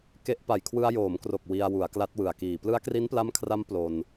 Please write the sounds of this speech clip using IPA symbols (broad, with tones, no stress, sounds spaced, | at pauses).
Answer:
k e˦˥ ʔ p a˨˩ j kʰ w ɯ˧ a̯ j oː˩˦ m k r o˨˩ k̚ w i˧ a̯ w u˩˦ a̯ k l a˦˥ t̚ w ɯ˨˩ a̯ k iː˨˩ p l ɯ˦˥ a̯ k r i˦˥ n p l a˦˥ m kʰ r a˦˥ m p l o˧ n